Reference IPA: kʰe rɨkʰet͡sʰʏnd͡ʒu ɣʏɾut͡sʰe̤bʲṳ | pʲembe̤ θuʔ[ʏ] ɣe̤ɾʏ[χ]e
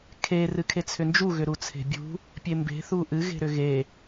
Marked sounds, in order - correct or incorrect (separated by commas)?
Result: incorrect, incorrect